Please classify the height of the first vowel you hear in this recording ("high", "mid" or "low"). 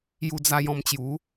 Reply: high